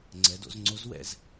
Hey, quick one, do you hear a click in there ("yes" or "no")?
yes